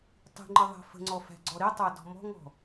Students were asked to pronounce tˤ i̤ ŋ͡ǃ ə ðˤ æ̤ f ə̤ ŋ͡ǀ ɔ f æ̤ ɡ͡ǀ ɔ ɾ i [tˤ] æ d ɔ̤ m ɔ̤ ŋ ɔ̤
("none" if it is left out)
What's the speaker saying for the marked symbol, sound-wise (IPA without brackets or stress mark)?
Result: tˤ